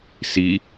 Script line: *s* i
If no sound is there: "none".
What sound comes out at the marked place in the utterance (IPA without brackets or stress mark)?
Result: s